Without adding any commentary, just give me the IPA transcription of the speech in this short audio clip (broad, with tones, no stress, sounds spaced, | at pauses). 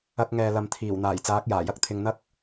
ɐ˧ k̚ ŋ ɛː˨ l ɐ˨ m t̪ʰ iː˨˩ w n̪ aː˨˩ j t͡s aː˨˥ k̚ j aː˨˩ j ɐ˥ k̚ t̪ʰ ɪ˧ ŋ n̪ ɐ˥ k̚